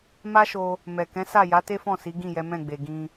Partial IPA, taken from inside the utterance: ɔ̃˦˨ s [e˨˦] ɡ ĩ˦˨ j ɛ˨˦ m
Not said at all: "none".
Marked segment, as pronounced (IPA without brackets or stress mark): i˨˦